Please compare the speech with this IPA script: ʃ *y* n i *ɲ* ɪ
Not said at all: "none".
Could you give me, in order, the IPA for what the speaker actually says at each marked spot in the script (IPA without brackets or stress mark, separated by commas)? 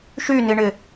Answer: y, ɳ